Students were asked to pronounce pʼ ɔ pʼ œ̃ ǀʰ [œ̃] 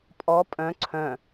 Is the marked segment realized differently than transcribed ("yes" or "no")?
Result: no